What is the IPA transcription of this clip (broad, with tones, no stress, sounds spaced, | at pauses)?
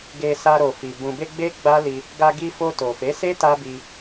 ɡ e˧ s a˧ ɾ o˨ f i˨ b ũ˨ b e˧ ɡ͡b e˦ ɡ͡b a˦ l i˧ | ɡ a˧ ɡ i˧ f o˧ t o˨ f e˨˦ s e˦ t a˦ b i˧